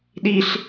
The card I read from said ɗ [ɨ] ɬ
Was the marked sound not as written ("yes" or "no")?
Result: yes